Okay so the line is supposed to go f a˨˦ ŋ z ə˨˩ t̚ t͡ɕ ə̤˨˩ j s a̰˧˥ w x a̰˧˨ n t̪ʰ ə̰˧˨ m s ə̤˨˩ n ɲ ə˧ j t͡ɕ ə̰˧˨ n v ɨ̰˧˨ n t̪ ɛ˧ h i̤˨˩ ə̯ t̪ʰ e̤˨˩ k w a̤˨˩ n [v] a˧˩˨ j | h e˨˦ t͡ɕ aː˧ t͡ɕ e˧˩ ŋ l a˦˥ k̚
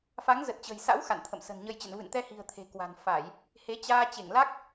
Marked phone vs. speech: incorrect: f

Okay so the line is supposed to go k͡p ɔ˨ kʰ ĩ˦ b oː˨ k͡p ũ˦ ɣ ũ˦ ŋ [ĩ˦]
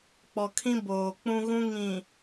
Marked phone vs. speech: incorrect: ĩ˨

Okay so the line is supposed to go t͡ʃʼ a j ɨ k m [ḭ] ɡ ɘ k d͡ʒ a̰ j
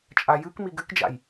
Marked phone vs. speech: incorrect: i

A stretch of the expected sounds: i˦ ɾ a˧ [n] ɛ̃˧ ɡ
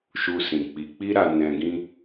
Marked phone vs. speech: correct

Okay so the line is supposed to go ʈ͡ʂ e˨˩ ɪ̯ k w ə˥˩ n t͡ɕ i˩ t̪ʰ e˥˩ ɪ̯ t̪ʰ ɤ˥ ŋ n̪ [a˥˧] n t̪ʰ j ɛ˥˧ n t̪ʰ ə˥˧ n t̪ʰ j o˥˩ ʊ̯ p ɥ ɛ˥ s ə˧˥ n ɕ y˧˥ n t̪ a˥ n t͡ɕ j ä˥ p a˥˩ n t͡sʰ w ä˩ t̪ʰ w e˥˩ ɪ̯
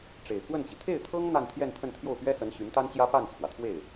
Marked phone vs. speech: correct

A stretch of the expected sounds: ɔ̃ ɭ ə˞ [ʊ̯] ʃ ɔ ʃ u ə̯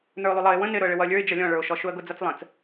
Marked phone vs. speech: correct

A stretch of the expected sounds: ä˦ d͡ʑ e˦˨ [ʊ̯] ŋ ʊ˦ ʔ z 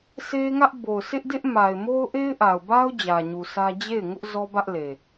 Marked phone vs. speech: incorrect: ɪ̯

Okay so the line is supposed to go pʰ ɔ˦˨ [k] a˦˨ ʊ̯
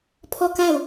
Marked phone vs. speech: correct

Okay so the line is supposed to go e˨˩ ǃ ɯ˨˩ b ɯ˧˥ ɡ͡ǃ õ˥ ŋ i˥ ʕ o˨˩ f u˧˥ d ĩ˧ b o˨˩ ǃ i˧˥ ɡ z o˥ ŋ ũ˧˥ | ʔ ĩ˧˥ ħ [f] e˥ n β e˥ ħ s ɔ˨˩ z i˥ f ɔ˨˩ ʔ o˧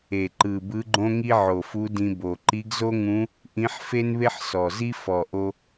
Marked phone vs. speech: correct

